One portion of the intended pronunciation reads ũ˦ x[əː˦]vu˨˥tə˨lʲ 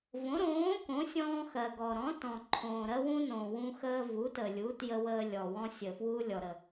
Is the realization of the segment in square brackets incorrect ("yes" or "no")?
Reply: no